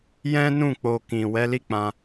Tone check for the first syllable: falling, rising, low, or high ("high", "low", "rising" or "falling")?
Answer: high